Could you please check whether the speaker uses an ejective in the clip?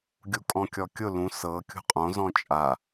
yes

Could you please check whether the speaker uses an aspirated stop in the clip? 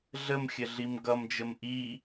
no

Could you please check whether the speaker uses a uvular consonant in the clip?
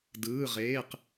yes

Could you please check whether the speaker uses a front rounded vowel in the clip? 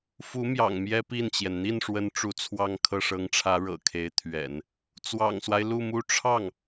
no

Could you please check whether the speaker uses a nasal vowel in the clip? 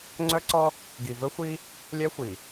no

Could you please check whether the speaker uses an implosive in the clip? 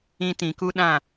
yes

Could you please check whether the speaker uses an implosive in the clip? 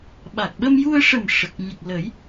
yes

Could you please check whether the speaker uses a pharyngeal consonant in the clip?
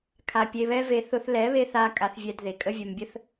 no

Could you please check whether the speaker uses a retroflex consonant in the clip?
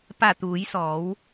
no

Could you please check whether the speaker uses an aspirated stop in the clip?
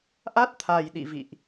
yes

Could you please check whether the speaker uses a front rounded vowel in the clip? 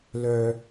yes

